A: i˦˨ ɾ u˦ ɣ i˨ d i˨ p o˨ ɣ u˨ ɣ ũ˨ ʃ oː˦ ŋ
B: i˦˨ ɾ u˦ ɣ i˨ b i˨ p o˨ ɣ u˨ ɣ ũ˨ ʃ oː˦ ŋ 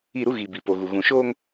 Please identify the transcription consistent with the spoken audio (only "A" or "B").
B